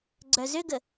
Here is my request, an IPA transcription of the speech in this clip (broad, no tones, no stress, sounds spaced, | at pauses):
ɡ͡ǀ œ z ʏ ɡ ə